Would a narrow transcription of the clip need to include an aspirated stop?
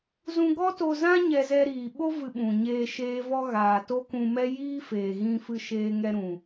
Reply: no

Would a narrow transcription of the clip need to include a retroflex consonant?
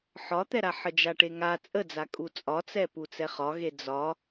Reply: yes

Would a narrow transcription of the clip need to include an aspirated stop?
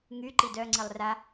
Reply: no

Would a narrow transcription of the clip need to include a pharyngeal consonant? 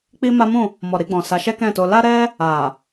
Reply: no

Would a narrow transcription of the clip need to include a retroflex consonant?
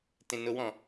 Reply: no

